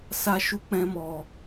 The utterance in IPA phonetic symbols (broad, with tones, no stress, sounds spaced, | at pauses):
s a˧ ʃ u˧ k͡p ɛ̃˧ m ɔ˨